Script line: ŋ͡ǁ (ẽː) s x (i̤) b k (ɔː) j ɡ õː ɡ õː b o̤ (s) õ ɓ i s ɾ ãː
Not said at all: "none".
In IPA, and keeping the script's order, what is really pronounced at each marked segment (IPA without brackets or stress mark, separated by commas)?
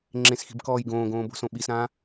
ẽ, i̤, ɔː, s